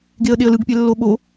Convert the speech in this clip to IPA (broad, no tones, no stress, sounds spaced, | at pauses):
ɡ e ə̯ ɗ e ə̯ l ɯ ɡ pʲ ɛ lː o ɓ o